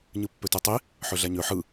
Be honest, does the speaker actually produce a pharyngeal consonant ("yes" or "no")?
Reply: yes